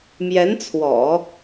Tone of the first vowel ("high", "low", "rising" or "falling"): rising